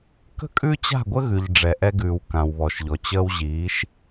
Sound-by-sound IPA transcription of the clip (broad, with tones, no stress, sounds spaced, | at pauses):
k ə̤˦ kʼ ʉ˦ t͡ɕ a̤˦˨ ɡʷ ə˦ ɣ ʉ˨ ʎ ɖ͡ʐ ɛ˨ ʔ ɛ˧ ɡ ʉː˨ w k ã˨ w β ɔ˨ ʃ ʎ ɔ˨ t͡ɕ əː˧ w ʑ iː˨˦ ʃ